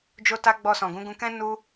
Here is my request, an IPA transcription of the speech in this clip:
d͡ʒ o˧ t a˧ ɡ͡b ɔ˧ s ɔ̃˨ ɡ ũ˨˦ ɡ ũ˧ k ɛ̃˦ n u˦

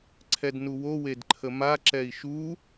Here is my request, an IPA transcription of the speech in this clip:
ǀʰ ɛ d n u w o w e d ǃʰ ə m a ǁ ɛ i̯ ʃ u

